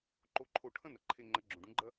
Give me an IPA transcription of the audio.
ǃ o˧˩ ǃʰ o˧˩ ʈʰ ɐ̃˥ n ɐ˩ ǃʰ e˧˩ ŋ͡ǃ ɐ˩˥ ɡ͡ǁ õ˩ ɖ ũ˩˥ ɡ͡ǃ ɐ˥

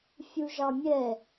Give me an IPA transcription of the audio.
fʲ u ʒ ɑ mʲ ɛ

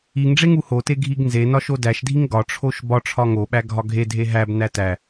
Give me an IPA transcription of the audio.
i ŋ ɖ͡ʐ e ŋ u h o t e ɡʱ i ɡ n z e n ɒ ʃ o d æ ʃ dʱ i ŋ ɡ ɒ ʈ͡ʂʰ o ʃ b ɒ ʈ͡ʂʰ ɒ ŋ o ɓ æ ɡʱ ɒ ɡʱ e dʱ e ɦ æ b n æ t æ

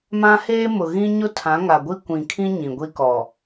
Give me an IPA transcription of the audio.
m ã˦ h eː˦ m ʊ˨ ɣ ĩ˦ ɲ ʊ˦ tʰ ã˨˦ ŋ a˨ ɡʷ i˦ kʷ ĩ˨ kʰ ĩ˦ ɲ ĩ˨ ɡʷ i˦ k ɔ˨

